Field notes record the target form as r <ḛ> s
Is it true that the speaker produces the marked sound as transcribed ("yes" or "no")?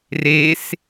no